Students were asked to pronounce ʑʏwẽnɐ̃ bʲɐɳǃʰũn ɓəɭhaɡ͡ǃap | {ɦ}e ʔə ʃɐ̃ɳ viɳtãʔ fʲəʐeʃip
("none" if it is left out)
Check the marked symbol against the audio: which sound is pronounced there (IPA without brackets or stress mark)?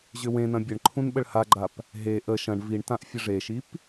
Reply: ɦ